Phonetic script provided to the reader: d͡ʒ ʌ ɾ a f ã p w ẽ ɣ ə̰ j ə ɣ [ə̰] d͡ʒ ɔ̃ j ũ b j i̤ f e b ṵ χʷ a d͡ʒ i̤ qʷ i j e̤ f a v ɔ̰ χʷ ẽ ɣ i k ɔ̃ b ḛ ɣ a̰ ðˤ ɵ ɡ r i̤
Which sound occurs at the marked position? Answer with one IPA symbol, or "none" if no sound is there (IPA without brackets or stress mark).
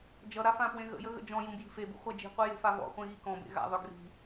ə̰